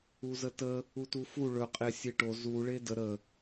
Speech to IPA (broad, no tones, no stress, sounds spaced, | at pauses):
u z ə t ə | u t u f u ɭ ɵ qʼ e sʲ e ʈ o z u ɭ e d ə ɾ ə